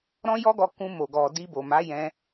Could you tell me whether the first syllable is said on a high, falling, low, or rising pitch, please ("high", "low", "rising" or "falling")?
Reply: high